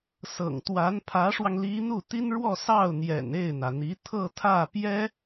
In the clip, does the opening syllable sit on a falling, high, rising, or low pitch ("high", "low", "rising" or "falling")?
low